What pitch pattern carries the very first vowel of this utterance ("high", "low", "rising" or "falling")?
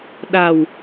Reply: low